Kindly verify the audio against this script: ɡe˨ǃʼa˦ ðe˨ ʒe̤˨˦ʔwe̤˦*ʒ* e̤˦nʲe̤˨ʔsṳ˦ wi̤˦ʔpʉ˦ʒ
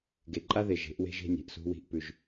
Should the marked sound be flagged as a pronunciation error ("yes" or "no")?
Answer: no